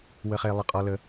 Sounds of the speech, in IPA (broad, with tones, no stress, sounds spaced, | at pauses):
w ə˦ χ e˦ lˠ ə˦ qʼ ɔ˦ l ə˦